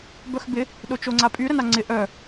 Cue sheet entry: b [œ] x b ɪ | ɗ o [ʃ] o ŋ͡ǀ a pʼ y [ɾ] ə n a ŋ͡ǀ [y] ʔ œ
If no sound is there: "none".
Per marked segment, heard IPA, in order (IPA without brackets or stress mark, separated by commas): œ, t͡ʃ, ɾ, ɪ